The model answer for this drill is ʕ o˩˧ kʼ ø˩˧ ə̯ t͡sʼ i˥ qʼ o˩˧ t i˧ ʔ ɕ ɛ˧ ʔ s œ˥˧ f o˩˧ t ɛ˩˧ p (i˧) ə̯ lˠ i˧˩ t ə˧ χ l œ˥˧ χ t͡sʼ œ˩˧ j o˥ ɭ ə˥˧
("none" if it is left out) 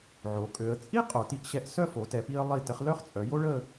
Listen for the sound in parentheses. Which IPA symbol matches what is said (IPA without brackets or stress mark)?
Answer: i˧